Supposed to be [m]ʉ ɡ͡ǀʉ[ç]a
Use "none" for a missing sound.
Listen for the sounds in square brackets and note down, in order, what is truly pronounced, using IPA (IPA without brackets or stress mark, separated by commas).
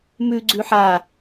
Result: m, ħ